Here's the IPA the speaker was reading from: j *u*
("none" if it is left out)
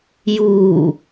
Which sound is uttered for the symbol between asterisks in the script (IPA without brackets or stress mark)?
uː